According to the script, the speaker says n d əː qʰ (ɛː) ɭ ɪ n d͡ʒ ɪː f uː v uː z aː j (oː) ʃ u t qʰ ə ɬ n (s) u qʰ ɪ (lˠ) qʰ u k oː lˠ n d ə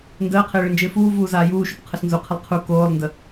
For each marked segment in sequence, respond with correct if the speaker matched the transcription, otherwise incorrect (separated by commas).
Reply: incorrect, incorrect, incorrect, correct